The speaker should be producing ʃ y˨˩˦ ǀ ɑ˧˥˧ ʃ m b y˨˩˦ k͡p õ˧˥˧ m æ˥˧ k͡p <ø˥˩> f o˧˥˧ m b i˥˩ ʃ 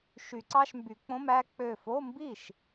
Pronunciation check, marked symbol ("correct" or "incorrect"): incorrect